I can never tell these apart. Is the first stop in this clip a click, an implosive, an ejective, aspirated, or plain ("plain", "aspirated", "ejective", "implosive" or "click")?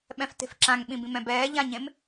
implosive